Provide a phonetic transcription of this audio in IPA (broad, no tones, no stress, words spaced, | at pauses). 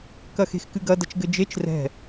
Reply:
kɐxe̤xkɨɡɐ dɐt͡ʃɡɘd͡ʒet͡ʃ rɛ̤